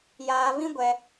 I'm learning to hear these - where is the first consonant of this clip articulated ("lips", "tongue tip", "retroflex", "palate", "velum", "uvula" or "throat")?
palate